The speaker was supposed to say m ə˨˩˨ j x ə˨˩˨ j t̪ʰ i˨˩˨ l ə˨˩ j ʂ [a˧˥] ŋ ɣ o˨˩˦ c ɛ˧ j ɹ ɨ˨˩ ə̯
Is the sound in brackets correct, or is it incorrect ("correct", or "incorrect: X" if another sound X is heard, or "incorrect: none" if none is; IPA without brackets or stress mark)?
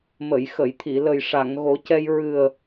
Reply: incorrect: a˨˩˨